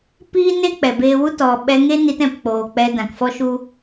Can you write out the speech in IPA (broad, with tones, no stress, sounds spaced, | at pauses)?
p iː˦ n e˦ k͡p ɛ˨ b eː˧ w u˦ t ɔ˨ ɓ ɛ˧ ŋ e˦ n i˧ t ɛ̃˨ p k͡p oː˨ k͡p ɛ˧ d ã˨ k f ɔ˦ ʃ u˦